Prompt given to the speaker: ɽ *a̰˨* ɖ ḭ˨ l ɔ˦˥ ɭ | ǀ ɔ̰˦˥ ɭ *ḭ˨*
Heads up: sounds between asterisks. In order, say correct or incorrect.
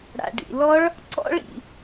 correct, correct

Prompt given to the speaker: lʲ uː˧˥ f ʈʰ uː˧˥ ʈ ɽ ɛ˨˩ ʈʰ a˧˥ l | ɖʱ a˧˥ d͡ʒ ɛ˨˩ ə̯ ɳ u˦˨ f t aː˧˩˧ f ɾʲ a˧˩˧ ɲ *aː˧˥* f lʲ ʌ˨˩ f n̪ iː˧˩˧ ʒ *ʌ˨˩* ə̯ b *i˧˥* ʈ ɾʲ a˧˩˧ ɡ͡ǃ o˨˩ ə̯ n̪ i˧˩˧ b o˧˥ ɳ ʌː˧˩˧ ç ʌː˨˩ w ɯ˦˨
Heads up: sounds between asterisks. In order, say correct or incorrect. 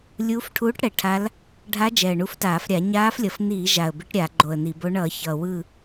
correct, incorrect: a˨˩, correct

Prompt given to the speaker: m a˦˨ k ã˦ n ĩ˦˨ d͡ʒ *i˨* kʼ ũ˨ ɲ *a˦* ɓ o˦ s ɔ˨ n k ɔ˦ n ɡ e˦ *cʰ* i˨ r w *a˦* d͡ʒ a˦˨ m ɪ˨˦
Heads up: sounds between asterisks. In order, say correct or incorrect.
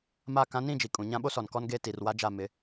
correct, incorrect: ã˦, incorrect: t, correct

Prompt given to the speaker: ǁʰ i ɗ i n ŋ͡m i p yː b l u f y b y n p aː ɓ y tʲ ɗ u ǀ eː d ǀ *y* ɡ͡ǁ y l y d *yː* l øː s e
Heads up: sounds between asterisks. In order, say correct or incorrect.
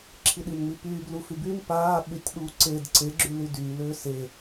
incorrect: e, correct

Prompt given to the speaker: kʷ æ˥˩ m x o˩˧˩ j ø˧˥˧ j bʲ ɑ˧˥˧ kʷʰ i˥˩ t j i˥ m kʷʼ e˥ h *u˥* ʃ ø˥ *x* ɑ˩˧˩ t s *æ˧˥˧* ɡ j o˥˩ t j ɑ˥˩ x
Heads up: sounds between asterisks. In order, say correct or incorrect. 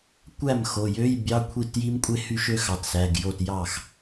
incorrect: y˥, correct, incorrect: æ˩˧˩

